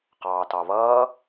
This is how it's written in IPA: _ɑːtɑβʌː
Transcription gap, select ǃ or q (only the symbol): q